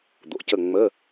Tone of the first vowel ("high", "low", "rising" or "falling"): low